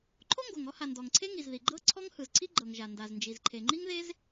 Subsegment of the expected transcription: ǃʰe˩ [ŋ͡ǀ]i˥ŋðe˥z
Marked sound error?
yes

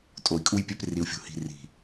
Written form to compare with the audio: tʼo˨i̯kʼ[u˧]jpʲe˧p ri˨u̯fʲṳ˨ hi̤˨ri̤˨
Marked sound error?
no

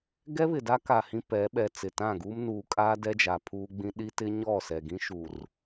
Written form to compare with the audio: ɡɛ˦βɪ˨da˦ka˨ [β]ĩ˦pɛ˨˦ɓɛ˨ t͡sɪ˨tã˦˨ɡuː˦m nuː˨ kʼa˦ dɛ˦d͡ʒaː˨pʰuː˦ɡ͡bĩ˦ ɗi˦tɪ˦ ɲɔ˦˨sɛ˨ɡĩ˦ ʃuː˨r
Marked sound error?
yes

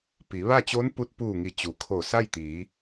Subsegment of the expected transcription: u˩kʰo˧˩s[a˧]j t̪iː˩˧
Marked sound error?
yes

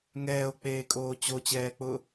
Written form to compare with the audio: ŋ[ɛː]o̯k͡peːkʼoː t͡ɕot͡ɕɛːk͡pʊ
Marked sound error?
no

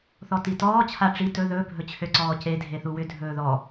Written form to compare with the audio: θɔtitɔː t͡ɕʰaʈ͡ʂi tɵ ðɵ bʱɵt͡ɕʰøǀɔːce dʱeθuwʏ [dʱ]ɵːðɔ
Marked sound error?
no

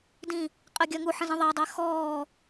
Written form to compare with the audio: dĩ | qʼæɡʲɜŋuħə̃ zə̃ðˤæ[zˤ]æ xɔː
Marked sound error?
yes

